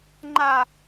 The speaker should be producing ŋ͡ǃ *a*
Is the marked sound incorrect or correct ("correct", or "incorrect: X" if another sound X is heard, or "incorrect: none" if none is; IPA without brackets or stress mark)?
correct